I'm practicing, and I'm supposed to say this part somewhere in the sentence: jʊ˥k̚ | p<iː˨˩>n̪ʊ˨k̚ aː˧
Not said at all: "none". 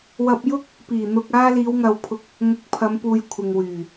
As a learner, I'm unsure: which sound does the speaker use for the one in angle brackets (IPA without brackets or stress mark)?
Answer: iː˨˩